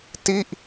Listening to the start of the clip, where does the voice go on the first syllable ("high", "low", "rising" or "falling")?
falling